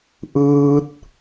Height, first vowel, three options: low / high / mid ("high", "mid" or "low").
high